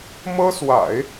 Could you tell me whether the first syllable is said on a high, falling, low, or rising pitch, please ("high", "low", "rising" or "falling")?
high